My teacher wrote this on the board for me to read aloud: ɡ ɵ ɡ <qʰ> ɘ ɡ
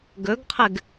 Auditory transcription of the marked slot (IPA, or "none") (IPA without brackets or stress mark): qʰ